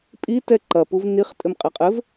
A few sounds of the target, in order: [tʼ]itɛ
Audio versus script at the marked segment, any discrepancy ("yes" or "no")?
yes